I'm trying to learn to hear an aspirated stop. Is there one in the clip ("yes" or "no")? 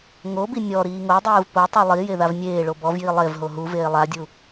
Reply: no